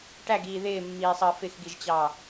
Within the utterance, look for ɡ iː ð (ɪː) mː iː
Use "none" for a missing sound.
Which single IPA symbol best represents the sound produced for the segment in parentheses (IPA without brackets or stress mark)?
ɪː